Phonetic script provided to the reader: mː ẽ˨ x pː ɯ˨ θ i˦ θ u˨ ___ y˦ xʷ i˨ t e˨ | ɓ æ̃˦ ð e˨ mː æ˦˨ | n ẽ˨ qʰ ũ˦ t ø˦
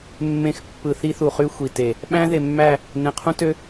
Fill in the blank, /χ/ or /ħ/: χ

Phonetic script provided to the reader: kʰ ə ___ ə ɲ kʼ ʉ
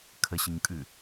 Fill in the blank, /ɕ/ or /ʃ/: ɕ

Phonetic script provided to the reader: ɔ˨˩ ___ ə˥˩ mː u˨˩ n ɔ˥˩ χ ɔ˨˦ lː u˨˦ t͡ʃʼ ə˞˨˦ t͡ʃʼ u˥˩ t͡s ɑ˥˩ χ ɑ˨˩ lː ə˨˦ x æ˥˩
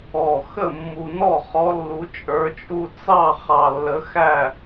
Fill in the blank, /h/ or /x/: x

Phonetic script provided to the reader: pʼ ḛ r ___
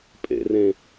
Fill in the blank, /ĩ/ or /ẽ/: ẽ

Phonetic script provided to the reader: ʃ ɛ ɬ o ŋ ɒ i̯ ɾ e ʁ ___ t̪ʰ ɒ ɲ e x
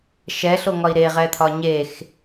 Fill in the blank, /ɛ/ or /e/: ɛ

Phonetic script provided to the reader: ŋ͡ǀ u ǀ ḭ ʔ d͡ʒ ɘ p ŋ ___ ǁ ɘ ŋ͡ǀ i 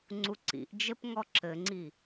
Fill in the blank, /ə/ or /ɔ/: ɔ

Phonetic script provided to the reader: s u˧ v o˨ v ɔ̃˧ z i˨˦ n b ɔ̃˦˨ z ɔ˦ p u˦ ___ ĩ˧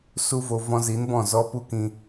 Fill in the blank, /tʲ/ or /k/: k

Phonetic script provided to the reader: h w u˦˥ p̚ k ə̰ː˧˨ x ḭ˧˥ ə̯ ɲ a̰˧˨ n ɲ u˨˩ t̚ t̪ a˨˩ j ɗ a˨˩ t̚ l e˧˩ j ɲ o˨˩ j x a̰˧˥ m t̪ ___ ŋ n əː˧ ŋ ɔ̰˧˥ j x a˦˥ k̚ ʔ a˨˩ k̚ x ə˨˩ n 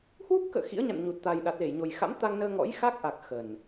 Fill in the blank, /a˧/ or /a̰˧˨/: a˧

